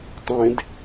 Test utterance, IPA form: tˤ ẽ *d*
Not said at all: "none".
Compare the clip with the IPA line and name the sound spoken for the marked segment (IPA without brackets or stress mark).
d